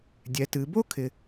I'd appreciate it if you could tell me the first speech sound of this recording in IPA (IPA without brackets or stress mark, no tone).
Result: dʲ